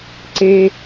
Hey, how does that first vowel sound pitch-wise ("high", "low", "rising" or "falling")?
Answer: low